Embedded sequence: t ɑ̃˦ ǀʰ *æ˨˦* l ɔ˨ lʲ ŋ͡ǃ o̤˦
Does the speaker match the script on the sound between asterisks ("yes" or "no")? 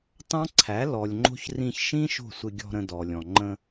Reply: yes